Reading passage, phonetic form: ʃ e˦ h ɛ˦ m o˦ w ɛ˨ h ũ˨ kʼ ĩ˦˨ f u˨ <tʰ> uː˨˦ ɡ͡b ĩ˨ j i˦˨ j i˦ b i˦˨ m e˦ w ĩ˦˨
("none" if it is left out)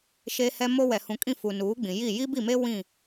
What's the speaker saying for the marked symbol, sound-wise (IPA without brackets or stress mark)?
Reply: n